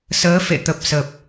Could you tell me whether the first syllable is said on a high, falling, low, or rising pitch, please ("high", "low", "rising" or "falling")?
rising